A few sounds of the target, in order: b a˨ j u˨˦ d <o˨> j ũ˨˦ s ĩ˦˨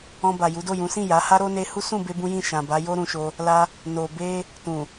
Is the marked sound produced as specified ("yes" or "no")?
no